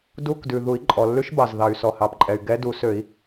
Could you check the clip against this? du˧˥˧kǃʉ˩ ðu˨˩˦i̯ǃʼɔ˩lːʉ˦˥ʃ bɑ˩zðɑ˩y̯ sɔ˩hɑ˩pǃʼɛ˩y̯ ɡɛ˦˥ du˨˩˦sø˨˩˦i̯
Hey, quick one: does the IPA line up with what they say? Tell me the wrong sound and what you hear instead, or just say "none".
ǃ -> d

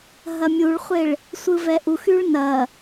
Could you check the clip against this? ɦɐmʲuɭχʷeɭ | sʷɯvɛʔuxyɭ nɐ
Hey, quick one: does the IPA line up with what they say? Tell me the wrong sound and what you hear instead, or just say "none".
none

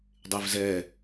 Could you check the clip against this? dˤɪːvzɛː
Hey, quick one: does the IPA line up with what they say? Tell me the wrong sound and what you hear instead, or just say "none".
none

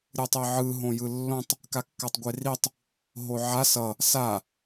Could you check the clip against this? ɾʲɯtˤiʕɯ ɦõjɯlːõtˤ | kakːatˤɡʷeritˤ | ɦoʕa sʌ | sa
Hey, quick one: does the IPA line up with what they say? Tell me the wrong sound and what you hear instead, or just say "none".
none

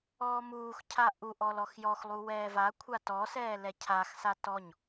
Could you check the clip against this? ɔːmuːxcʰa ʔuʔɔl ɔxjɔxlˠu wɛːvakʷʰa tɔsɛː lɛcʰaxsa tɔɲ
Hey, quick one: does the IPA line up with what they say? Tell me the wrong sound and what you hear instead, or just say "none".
none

